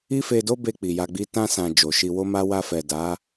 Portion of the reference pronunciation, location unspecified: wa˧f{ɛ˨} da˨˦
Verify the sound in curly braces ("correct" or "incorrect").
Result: correct